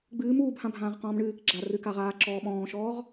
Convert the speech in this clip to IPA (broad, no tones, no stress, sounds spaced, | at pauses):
ɡ͡b ɨː m uː b h ã bʱ ãː ʁ q ɔ̃ː m ɳ ɨː k ɡ͡ǁ a r ɨ k a ʁ aː ǁ ɔː ɓ ɔ̃ː ʃ ɔː ʁ